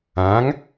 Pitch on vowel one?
rising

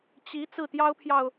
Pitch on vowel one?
rising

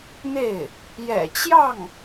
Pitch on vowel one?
falling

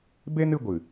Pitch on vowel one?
high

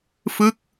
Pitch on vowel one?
falling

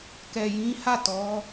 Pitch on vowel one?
low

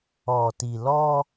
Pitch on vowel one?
low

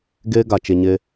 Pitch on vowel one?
high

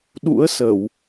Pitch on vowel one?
rising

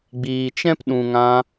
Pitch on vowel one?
low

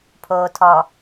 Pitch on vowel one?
low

